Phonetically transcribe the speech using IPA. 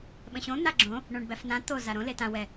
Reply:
ɓə̃ɕõ n̪aɡ͡ǁõ | ɳõɳbæfnã t̪o zaɾõ letã wɛ

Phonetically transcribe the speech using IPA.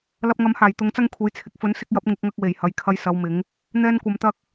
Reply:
lɐ˧p̚ŋɐ˨˥mhaː˨˩j t̪ʊ˨˥ŋt͡sɐ˥ŋkʷʰe˨˥j t͡sʰɪ˨k̚fɵ˨˥n sɪ˧k̚jɐ˨˥p̚ ŋɪ˨˥k̚ŋɐ˧k̚ we˨˩jhɐ˨j kʰɐ˧jsɐ˨˧w mɪ˨˥ŋ | n̪ɛː˥nkʷɐ˧mt̪ɐ˥k̚

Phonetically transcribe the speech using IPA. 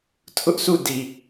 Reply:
tʰʊ˦ʔsʰu˦˨di˨

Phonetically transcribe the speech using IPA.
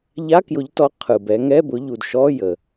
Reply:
ʎa˧˥˧kjʊ˨˦ʎtɔ˨˦ qʰɯ˩bɛ˨˦ ŋɛ˧˥˧bʊ˨˦ ʎu˩dʃɔ˧˥˧ jə˩

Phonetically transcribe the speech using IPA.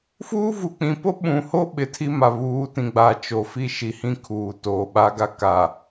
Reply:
fuː˦ vu˨ k͡pĩ˨po˦ ɓũ˨ho˦ ɓɪ˨tʰi˦ma˨ βuː˨˦tĩ˨ɡ͡ba˨ t͡ʃo˨fi˦ʃi˨ hĩ˦kʰuː˨ toː˨ɓa˦ɡa˦ ka˨

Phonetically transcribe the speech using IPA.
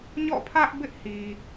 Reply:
ɲɔ̰˦˨pʰä˦ʔ bɪ˦ʔhi˨

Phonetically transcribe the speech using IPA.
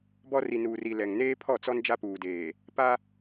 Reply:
bɔ˦ri˨nuː˨ri˨ lɛ˨ŋneː˦pʰɔ˦˨t͡sɔ˦n d͡ʒa˦puː˨deː˨ | pa˦

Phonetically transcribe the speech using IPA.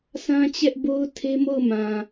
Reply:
sʰã˦t͡ɕɛ˦ʔbo˦ʊ̯ tʰe˦mo˦˨ʊ̯mã˨

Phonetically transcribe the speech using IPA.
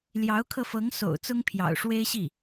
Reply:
ljɑ˧˥ʊ̯kʰɤ˧fɤ˧˥ŋ so̰˨˩ʊ̯ t͡sʊ˥ŋpʰjɑ̰˨˩ʊ̯ʂwe˥ɪ̯ ɕi˥˩

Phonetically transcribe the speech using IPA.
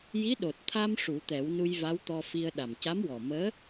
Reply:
ji˧˥ ɗo˨˩t̚t̪ʰa˧m ʂu˨˩˦t̪ɛ˨˩˦wnu˧j va˧˥wt̪ɔ˧fi˧ə̯ ɗa˨˩mca˧˥mwɔ˨˩məː˧˥

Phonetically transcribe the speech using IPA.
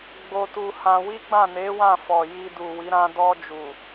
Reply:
ɡ͡bo˧tu˧hã˧ wi˦ɡ͡bã˦˨ ne˨˦wã˦˨fɔ˨ ji˧ du˨wi˨˦ ɾã˧dɔ˧ d͡ʒu˨

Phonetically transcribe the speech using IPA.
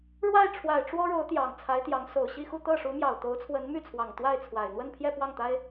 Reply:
ɻwa˥˩ɪ̯ ʈ͡ʂʰwa˨˩ɪ̯ ʈ͡ʂwɔ˥ɻo˧˥ʊ̯ t̪jɑ˨˩ŋt͡sʰa˧˥ɪ̯t̪jɑ˧˥ŋ so˨˩ʊ̯ɕi˥˧xu˥˧ t̪ɤ˥˩ʂu˧˥mjɑ˨˩ʊ̯ t̪o˧˥ʊ̯t͡sʰwə˧˥nmy˥˩t͡sʰwɑ˨˩ŋ t̪wa˥˩ɪ̯ t͡sʰwa˨˩ɪ̯ n̪wə˥˧npʰjɛ˥˧ pwɑ˥˩ŋt̪a˥ɪ̯

